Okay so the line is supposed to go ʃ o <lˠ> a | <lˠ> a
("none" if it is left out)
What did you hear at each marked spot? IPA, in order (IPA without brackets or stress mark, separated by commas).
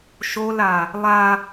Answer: l, lˠ